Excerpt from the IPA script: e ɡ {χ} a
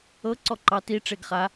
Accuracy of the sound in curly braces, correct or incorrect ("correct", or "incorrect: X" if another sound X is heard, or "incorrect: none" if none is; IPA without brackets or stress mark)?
correct